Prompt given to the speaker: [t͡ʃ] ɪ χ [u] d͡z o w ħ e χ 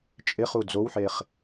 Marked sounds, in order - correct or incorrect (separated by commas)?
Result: incorrect, correct